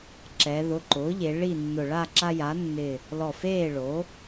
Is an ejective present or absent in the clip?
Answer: absent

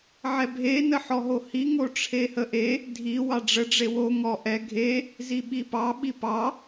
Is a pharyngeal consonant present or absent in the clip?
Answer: present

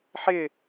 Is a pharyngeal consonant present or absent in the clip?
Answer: present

